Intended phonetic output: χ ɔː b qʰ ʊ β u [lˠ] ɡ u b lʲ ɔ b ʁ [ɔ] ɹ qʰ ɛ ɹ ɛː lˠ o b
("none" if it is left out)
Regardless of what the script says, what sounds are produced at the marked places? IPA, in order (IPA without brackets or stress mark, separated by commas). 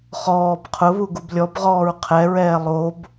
none, ɔː